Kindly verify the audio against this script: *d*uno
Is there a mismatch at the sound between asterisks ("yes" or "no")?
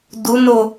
no